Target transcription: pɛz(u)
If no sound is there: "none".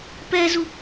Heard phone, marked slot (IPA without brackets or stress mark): u